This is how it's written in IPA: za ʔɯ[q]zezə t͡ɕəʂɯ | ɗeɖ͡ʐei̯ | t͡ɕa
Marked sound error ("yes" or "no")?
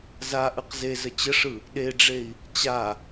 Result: no